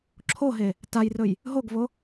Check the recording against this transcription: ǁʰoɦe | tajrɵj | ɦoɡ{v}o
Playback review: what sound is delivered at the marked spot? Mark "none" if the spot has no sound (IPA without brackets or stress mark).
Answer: v